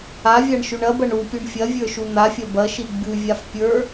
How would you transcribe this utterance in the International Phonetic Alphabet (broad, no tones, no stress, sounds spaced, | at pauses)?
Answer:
a vʲ a ɳ ʃ ʉ ɳ ɐ b ɐ ɳ u pʲ u ɳ fʲ ɐ vʲ ə˞ ʃ u n̪ a fʲ ɐ b ɐ ʃ i ɡ͡b ʉ vʲ a f pʲ ə˞